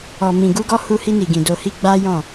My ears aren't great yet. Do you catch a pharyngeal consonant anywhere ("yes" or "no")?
no